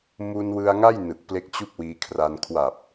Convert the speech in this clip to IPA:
m u˧ n w ɯ˧ a̯ ŋ a˥˩ j n ɯ˨˩ k̚ p l e˦˥ k̚ t͡ɕ u˥˩ k̚ w iː˧ kʰ r a˧ n kʰ w a˨˩ p̚

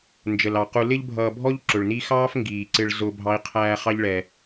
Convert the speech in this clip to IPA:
n d͡ʒ ə˩ l ɑ˩ q u˨ l ɪ˦ ʎ bʱ ʌː˨ bʱ ɔ˦ ʎ ǁ ʊ˩ ɭ n i˦ x ɑː˥ f ŋ ɡ iː˩ ǀ ɪ˨ ɭ z ʊ˦ bʱ ɑ˦ i̯ qʰ æː˦ χ ɑ˥ ʎ ɭ ɛ˨

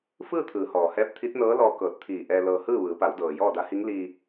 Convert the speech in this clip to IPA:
f ɯː˥˨ t̪ʰ ɯː˩˧ h ɔː˩ h ɛː˧˥ p̚ t̪ʰ i˧˥ t̚ n ɤː˧˥ l ɔː˧ k ɤː˧˩ t̚ t̪ʰ iː˧˩ ʔ ɛː˧ l ɤː˧ h ɯː˥˨ ʋ ɯː˩˧ p a˩˧ w d ɤː˩ j ɔː˥˨ d a˧˥ h i˧˥ ŋ l iː˧

